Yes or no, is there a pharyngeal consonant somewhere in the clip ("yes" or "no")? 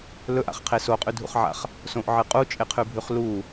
yes